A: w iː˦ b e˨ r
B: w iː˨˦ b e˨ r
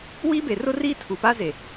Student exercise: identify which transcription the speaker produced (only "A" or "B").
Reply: A